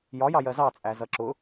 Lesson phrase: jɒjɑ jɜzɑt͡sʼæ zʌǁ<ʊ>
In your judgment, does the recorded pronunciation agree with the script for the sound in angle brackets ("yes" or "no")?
yes